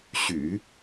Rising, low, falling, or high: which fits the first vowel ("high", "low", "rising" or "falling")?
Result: low